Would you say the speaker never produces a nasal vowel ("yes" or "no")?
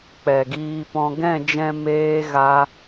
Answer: no